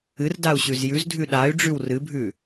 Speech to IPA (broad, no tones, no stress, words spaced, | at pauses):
ɨrdau̯ɕʉz jʉzdʱʉ ɗay̯ɖ͡ʐʉw rɨbʱʉ